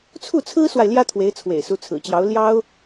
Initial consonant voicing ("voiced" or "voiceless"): voiceless